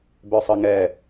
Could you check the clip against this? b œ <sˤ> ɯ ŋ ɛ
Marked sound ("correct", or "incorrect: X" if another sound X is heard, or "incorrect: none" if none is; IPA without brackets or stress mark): correct